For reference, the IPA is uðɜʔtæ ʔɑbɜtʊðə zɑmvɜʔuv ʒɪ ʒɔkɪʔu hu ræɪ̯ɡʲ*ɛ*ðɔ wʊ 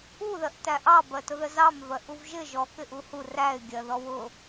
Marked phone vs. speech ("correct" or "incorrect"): incorrect